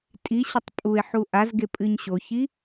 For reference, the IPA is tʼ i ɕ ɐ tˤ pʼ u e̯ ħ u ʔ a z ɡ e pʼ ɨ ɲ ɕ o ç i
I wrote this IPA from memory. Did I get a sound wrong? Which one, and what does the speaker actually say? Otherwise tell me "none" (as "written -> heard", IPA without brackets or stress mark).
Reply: none